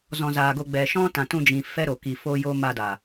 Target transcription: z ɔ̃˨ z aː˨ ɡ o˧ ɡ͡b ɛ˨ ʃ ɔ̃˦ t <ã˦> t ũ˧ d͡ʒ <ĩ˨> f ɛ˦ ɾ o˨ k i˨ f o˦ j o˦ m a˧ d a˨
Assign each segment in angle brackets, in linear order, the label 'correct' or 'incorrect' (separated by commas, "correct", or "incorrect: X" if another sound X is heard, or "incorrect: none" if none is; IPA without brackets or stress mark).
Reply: incorrect: ã˨, correct